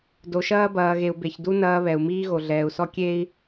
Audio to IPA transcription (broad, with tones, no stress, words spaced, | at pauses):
do˨ʃɐː˦bɐː˨ɣe˨u̯ be˨çdu˦ nɐː˦βɛ˨u̯ miː˦ɣo˨ɮɛː˨u̯sɔ˦ kʲe˦i̯